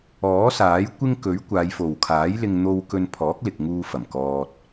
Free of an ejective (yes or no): yes